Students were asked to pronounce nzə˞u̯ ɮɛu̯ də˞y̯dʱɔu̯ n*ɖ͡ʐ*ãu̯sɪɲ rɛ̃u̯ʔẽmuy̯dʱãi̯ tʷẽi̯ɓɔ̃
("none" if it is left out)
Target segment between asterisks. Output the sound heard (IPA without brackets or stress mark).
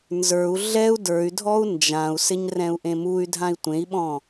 d͡ʒ